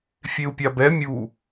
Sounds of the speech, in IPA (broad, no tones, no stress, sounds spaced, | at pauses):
fʲ e u̯ pʲ a b ɛ mʲ u